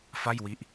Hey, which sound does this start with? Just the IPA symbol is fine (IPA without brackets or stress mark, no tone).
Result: f